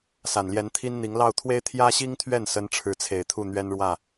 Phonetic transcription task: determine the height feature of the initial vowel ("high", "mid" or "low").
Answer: low